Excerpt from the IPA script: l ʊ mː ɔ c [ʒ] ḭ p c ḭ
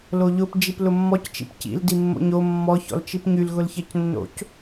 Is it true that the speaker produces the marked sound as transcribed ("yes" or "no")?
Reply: no